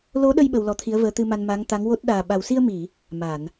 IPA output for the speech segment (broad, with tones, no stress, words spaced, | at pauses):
lo˧˥ɗə˧j ɓə˧wlɔ˧˥t̪ʰi˧˥ə̯vəː˧˥ t̪ɨ˧ma˧n ma˧˥ŋt̪a˧˥ŋwo˦˥t̚ ɗaː˨˩ɓa˨˩wsi˧ə̯mi˨˩˨ | ma˨˩˨n